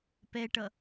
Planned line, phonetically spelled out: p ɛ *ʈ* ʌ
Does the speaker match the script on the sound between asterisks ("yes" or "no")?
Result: yes